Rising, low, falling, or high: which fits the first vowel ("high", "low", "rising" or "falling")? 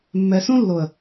low